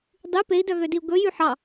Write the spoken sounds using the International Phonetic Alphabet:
dˤy pei̯dœɣødiu̯ ɡɵjy ħɑ

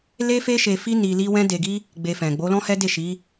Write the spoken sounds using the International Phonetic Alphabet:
le˦ fe˦ʃe˧fi˦ ni˧li˦ wɛ̃˦de˧ɡi˦ | ɡ͡be˧fɛ̃˨ ɡ͡bo˨˦lɔ̃˦ hɛ˦de˦˨ʃi˨˦

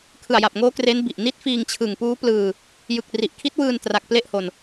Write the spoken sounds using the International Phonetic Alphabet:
kʰɯ˨˩a̯ja˨˩p̚ŋoː˦˥ kre˦˥nbi˨˩ʔ ni˦˥t̚fiː˧ŋt͡ɕʰɯ˨˩ŋpuː˦˥ plɯː˧ | jɯ˨˩k̚ ri˨˩ʔkʰi˦˥t̚wɯː˧n tra˨˩k̚ ple˥˩ʔho˨˩n

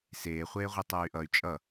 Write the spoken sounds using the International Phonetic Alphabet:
seːχʷeːʁʷɯ tˤʌːy̯ʔʌy̯ t͡ʃʼʌ

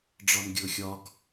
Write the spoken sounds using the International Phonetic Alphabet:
ɖ͡ʐɒnɡʲɤxʲɒɡ

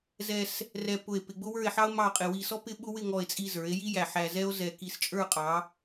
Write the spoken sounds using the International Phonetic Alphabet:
zɛ˧s | rɛ˧pʊ˧˩e̯ pɪ˧ɡ͡bʊ˥wə˞˥˧e̯ħɑ˥o̯ mɑ˥˧qʼɪ˧ wi˧sɔ˥ pɪ˥ɓʊ˥ wɪ˥˧ ŋɔ˧˩e̯t͡sʼi˧ zə˞˩˧e̯ji˥ jæ˧˩ħæ˧zɛ˥o̯zɛ˧ ki˧˩st͡ʃʼə˞˥˧qʼɑ˩˧

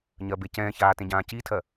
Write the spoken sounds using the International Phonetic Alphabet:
ɲɜbecɛ̃ːçaː tẽɟãːcitʰɜ

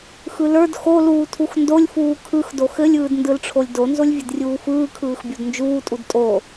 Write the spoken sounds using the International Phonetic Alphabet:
xɯlə˞d xoluː tʰuxndolʲfuː kʰɯxdo xɘlʲɯːdndɯlʈ͡ʂʰolʲ donzolʲvʲəd rʲuːfɯːkʰɯːxbʲod nd͡ʒuːtʼud tʼo

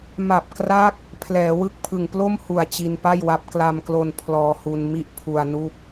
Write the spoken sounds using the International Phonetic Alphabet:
ma˨˩p̚kra˦˥k̚ | pʰlɛː˩˦wɯ˥˩k̚pʰɯ˨˩ŋ plo˥˩mhu˨˩a̯ t͡ɕi˧npa˥˩jwa˦˥p̚ kla˧mklo˧n pʰlɔː˧hu˧n mi˥˩ʔpʰu˧a̯nu˥˩k̚

